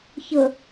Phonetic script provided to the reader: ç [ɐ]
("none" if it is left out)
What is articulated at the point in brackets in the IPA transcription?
ə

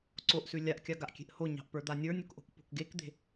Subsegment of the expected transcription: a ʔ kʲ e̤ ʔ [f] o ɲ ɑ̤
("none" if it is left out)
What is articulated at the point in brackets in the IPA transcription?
h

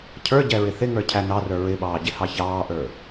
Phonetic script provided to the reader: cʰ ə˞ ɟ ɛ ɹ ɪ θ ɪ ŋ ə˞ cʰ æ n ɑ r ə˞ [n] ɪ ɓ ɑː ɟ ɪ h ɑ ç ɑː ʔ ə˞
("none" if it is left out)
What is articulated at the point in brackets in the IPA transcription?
ɹ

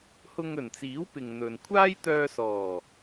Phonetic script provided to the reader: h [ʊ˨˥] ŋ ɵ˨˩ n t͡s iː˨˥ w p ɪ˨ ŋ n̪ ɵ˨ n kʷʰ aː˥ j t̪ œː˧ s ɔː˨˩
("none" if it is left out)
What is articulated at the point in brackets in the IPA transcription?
ʊ˧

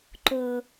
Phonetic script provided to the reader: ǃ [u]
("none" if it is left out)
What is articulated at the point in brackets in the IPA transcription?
ʊ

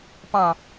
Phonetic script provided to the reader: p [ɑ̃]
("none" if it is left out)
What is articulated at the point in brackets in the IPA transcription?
ɑ̃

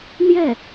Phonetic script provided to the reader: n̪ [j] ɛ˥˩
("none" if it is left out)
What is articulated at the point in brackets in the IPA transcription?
j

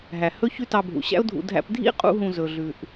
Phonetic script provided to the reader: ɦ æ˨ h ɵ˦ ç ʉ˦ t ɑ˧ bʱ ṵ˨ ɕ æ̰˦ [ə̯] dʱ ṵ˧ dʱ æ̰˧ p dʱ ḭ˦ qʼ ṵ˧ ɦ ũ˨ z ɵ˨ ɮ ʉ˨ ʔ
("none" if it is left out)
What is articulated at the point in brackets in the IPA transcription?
ʊ̯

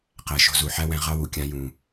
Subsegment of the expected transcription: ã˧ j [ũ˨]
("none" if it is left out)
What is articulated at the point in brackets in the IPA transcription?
ũ˨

